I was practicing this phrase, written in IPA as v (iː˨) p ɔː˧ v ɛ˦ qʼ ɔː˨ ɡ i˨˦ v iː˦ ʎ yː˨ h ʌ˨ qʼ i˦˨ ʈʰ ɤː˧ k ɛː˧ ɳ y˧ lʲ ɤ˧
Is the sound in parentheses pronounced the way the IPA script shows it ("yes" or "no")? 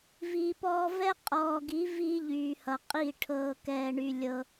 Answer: yes